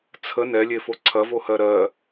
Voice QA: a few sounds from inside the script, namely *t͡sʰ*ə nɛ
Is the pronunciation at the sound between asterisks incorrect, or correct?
correct